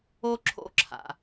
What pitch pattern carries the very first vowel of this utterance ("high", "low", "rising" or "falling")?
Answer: high